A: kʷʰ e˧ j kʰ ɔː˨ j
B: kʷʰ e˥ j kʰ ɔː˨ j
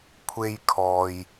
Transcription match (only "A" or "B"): A